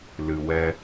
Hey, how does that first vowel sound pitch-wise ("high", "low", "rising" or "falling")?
low